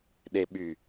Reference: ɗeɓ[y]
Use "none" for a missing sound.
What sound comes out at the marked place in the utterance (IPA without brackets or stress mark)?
y